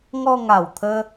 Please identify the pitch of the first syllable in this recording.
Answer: falling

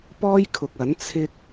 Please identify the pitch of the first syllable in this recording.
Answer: high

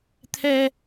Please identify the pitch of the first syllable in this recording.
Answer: high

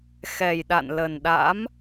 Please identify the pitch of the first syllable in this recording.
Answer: low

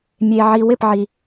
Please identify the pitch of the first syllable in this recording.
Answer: low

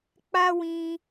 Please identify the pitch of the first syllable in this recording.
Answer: high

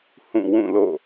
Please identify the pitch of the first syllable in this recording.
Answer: falling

